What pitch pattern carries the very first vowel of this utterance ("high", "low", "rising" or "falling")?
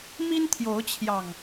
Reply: high